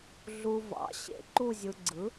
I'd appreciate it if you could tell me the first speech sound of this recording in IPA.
ɮ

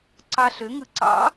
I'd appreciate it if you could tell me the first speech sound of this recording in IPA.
ǀ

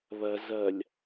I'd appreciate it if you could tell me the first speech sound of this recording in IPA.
β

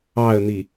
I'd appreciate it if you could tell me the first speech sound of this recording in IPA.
ɑ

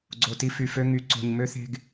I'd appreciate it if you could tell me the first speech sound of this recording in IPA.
ɡ͡ǀ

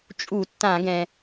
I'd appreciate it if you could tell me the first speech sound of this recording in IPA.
t͡ʃʼ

